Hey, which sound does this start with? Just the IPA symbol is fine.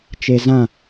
t͡ʃ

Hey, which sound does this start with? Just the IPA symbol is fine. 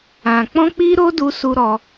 ã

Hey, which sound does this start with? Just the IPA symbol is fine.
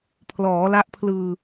pʰ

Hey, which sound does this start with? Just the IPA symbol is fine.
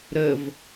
ɾ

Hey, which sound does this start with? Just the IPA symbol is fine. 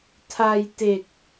tʰ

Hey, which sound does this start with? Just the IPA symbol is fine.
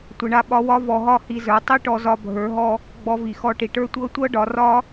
tʷ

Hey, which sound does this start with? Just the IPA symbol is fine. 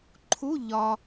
ǃʰ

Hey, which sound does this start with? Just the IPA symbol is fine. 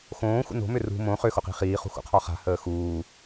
x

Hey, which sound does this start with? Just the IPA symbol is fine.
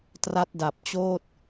t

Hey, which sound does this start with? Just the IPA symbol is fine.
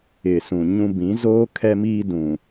ɪ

